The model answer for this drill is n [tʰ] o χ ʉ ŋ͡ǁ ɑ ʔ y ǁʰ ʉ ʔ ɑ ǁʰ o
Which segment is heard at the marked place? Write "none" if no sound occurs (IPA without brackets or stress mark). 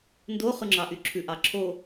d